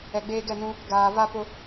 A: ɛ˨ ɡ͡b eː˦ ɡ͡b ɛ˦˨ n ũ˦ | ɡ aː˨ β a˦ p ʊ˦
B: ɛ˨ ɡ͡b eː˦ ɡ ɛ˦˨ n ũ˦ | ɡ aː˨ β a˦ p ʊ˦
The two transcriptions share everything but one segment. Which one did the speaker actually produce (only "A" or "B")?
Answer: B